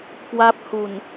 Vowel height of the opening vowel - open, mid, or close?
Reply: open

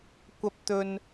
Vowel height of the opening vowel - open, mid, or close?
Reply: open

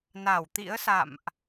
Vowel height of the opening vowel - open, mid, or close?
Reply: open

